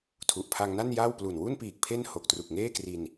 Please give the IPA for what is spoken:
tʰ u˨˩ ʔ pʰ a˧ ŋ n a˥˩ n j aː˥˩ w p l u˨˩ n w u˥˩ n p iː˨˩ k̚ pʰ e˥˩ n h o˨˩ k̚ t r u˨˩ k̚ ŋ eː˥˩ k r i˧ n

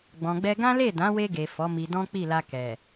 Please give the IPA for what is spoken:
ɡ͡b ɔ̃˨ ɡ͡b ɛ˧ ɡ ã˦ l e˦˨ d ã˨˦ w e˧ ɡ e˨ f ɔ˨˦ m i˧ d ɔ̃˦ k͡p i˦˨ l a˧ k ɛ˨

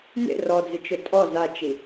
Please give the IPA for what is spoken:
n ḛ r ɔ d͡z ɪ t͡ʃ ʊ tʼ ɔ z a t͡ʃ i

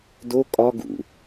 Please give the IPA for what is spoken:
d o kʼ ɒ ɡ ṵ

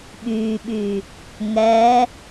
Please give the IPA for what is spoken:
ɓ yː ɓ yː | ŋ ɛː

